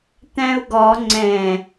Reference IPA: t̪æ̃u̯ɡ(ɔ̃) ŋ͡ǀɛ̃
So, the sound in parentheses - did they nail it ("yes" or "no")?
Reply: no